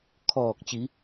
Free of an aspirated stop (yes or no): no